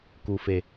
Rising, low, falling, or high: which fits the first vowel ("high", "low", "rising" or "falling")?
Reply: low